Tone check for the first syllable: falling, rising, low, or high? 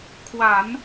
low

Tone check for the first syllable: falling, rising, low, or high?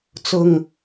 low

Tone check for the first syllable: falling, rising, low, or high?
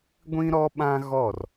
high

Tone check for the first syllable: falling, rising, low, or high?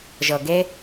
low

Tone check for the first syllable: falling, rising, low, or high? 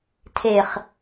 low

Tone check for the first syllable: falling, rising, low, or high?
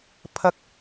low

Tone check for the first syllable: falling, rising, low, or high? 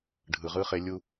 low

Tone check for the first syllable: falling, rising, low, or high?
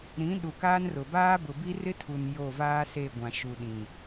rising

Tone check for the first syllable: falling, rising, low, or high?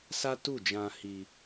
high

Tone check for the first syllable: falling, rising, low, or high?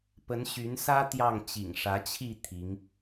rising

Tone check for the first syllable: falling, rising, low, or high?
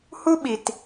high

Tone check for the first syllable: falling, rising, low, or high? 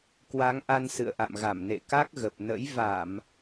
rising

